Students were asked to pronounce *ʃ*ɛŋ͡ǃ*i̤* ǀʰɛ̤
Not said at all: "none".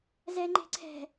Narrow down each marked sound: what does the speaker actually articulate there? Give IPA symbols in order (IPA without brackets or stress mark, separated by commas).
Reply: z, e̤